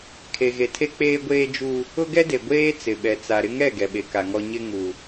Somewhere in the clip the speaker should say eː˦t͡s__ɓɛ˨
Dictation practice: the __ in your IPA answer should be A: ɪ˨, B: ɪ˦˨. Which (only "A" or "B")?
A